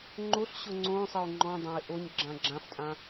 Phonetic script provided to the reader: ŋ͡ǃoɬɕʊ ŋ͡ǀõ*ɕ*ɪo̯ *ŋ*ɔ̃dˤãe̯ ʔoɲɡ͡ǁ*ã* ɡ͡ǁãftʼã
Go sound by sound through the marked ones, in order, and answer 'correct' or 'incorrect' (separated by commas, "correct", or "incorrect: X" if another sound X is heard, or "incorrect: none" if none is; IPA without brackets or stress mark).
incorrect: sˤ, incorrect: ŋ͡ǃ, correct